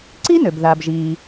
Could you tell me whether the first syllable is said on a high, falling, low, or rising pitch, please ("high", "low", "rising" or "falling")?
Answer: high